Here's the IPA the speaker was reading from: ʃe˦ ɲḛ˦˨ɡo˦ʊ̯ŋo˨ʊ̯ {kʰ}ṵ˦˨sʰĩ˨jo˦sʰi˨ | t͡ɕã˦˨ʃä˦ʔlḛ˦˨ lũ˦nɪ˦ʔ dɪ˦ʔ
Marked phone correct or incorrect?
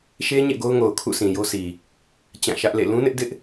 correct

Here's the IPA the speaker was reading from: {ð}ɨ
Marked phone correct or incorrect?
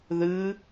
correct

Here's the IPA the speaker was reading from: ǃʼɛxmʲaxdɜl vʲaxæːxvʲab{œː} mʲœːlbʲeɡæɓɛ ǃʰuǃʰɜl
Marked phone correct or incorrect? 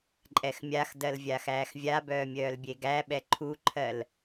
correct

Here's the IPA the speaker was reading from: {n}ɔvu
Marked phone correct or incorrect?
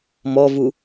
incorrect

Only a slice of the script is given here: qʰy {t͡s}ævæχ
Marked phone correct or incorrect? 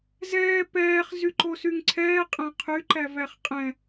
incorrect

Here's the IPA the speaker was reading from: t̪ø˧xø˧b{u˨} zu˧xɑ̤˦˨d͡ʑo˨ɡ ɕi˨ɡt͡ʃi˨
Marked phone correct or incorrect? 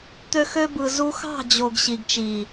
incorrect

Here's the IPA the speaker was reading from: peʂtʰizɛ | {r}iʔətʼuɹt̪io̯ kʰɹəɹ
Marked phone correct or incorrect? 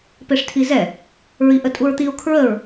incorrect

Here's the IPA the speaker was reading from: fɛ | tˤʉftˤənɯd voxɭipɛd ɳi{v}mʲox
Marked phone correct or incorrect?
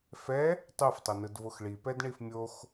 incorrect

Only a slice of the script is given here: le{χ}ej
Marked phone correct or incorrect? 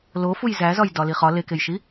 incorrect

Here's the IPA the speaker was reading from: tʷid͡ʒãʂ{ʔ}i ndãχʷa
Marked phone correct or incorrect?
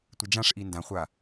correct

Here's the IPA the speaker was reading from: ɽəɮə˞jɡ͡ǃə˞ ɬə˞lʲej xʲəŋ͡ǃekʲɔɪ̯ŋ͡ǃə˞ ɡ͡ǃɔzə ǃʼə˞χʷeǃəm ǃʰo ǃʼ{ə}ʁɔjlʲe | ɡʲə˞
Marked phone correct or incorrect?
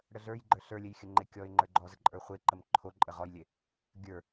correct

